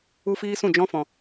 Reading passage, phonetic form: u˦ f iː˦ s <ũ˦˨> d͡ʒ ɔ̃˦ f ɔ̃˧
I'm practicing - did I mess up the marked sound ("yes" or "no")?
no